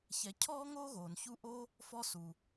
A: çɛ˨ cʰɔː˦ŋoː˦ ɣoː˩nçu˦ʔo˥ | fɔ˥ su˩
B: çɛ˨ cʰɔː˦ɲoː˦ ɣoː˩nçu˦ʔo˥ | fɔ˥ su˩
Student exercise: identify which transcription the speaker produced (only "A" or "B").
A